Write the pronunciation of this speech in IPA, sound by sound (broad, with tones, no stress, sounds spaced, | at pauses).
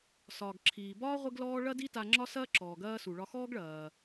s ɒː˩ ɡ ǁʰ iː˩ b ɒː˥ ʁʷ ɪ˥ ɡ l ɔː˥ ɭ ɐ˥ d i˥ t a˧ ŋ͡ǁ ɒ˥ s ɐː˥ ǁ ɔː˩ ɡ ɐː˧ s u˩ ɭ ɒ˧ x ɔː˥ ɡ ɭ ɐː˩